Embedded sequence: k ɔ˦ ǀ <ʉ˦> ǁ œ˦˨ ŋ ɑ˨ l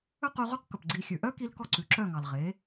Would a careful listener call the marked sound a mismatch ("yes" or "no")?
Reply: yes